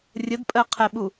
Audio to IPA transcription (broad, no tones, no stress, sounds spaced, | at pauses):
rʲ ə d pʼ ɜ qʰ ɛ ɓ u